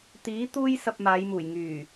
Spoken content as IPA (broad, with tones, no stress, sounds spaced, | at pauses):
t̪ iː˨˥ t̪ uː˥ j s ɐ˧ p̚ m aː˨˧ j m uː˨˩ j ŋ yː˨˩